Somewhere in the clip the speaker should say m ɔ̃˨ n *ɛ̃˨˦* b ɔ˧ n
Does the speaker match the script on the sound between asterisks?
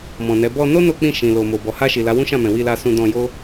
no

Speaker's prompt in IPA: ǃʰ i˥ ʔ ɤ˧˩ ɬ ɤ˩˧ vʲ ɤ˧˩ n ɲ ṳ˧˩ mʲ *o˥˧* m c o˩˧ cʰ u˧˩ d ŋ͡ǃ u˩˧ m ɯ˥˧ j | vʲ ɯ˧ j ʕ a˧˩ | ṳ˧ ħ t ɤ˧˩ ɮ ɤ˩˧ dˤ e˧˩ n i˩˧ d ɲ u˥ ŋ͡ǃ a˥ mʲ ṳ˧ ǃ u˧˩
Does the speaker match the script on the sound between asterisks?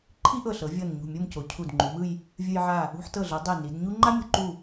yes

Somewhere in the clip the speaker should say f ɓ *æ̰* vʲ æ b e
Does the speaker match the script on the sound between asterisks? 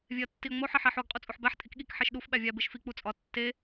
no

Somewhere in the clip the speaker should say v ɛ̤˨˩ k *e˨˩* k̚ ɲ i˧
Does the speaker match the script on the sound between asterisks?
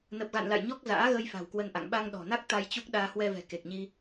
yes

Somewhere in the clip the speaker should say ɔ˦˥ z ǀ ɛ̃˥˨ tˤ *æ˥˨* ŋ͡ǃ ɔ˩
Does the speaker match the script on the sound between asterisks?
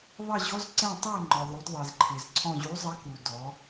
yes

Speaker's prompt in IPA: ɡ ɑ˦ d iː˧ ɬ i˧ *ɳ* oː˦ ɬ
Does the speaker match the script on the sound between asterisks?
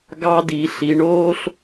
yes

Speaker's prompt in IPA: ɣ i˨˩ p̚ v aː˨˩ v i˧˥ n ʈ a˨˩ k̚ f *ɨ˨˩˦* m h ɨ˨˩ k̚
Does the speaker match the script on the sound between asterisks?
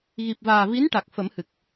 no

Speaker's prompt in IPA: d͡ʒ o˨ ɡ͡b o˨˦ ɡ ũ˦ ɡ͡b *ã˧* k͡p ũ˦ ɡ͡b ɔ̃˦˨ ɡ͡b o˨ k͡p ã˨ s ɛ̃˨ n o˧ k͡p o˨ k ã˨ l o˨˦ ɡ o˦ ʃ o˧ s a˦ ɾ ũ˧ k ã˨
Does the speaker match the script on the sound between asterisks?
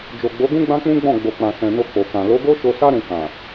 no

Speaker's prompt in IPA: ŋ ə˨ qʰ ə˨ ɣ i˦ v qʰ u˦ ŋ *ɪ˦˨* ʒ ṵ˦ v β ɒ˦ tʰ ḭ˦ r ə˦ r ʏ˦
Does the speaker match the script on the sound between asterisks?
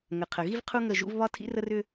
no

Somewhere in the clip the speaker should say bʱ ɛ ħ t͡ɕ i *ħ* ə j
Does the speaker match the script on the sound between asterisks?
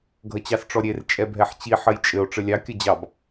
yes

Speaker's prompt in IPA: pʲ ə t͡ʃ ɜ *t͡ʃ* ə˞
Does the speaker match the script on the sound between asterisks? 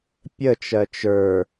yes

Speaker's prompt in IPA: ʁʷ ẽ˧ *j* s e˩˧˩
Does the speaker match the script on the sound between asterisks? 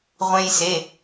yes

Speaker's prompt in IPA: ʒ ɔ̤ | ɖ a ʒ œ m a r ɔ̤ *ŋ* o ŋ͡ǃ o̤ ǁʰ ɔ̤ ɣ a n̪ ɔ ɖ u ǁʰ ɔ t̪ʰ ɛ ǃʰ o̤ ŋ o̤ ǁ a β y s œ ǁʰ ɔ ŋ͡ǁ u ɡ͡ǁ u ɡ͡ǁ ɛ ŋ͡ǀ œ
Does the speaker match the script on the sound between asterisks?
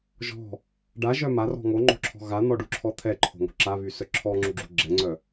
yes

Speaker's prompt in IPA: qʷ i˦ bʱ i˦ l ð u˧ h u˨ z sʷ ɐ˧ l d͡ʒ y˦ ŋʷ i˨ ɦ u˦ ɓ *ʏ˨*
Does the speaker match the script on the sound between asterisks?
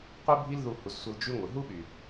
no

